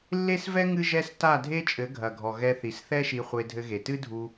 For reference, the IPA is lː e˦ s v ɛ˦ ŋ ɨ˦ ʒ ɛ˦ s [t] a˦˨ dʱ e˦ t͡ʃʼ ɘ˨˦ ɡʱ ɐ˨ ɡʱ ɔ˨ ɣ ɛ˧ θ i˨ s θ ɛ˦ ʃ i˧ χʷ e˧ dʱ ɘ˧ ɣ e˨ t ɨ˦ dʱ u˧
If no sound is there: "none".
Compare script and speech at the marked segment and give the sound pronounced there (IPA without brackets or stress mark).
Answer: t